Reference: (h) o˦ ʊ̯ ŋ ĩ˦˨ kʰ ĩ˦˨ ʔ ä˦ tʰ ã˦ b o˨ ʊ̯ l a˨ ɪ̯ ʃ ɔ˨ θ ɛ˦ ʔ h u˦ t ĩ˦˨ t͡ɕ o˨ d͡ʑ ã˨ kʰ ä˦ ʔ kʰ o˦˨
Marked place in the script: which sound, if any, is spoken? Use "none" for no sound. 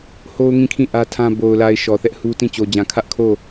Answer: h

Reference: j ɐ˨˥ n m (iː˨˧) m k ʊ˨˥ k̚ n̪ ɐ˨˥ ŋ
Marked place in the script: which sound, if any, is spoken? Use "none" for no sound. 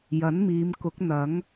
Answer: iː˨˧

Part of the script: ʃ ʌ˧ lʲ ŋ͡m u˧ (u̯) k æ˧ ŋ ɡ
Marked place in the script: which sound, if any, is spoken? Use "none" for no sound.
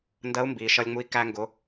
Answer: i̯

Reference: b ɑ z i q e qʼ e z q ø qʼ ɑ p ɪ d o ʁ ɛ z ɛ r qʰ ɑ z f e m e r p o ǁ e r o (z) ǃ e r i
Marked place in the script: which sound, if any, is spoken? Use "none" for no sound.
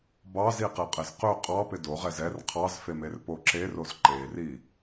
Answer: z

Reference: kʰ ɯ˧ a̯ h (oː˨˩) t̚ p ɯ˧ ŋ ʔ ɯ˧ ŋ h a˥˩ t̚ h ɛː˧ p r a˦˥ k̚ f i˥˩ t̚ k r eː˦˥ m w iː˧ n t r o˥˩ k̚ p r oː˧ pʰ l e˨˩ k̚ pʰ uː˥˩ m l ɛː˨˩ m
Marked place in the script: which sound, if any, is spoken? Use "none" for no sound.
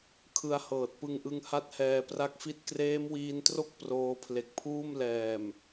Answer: ɤː˨˩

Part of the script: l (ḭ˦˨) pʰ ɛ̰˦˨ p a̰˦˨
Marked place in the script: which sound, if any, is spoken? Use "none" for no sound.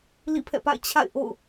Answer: ḭ˦˨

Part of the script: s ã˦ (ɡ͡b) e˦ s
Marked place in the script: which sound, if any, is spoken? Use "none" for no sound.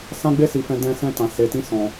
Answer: ɡ͡b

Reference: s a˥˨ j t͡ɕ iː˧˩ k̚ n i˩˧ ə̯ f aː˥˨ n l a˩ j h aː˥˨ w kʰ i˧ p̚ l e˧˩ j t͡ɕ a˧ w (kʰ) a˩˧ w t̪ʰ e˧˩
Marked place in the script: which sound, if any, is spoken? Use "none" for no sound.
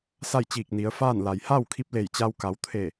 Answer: k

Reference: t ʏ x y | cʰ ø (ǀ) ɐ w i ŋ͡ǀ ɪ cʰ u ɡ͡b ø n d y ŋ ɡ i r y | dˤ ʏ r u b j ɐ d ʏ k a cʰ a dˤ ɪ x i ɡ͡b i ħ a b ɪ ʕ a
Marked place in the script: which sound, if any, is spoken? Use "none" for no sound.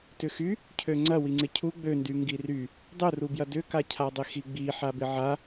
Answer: ŋ͡ǀ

